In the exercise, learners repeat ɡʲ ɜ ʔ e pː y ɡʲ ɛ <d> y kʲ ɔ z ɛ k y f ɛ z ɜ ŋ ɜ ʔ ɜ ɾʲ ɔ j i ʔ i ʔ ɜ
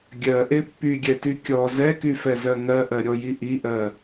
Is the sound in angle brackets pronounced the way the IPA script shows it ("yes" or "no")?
no